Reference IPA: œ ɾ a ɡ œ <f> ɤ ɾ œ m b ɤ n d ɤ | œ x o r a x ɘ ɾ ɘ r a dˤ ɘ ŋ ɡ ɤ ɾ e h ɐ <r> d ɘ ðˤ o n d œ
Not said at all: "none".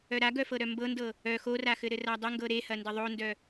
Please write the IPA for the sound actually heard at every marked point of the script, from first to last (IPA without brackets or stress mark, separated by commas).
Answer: f, n